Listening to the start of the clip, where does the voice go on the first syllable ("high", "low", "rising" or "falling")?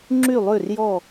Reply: falling